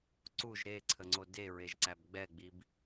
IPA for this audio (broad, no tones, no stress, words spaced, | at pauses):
ǀuʒ ɾeǀʰəŋ͡ǀo deɹeʒǀæb ɡ͡bɛɡ͡bib